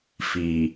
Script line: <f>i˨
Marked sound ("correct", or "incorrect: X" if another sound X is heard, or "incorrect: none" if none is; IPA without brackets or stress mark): correct